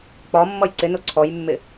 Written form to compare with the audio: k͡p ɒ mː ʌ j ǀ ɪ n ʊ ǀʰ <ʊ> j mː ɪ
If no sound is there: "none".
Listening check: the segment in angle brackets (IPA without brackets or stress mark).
ɔ